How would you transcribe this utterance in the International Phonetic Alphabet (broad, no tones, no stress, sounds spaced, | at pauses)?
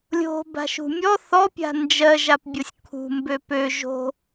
lʲ o̤ b a̤ ʃ ṳ mʲ ɔ θ ɔ pʲ a̤ n d͡ʒ ɜ ʒ a p bʲ o sʲ kʰ ṳ m b ø p ø ʒ o̤